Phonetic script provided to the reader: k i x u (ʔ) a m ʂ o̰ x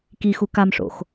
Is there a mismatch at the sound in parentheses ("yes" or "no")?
yes